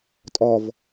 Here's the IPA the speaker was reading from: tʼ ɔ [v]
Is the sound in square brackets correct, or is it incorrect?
correct